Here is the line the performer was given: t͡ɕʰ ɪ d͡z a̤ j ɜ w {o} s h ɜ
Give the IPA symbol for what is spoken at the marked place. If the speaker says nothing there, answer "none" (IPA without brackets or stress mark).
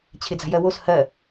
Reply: o